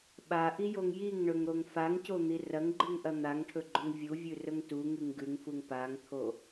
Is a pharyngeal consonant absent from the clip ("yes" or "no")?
yes